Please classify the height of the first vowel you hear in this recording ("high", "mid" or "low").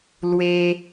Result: mid